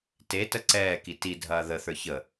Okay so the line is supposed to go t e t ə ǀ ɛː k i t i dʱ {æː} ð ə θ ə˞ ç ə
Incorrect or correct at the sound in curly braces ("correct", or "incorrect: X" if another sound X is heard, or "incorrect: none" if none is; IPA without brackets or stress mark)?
incorrect: ɐː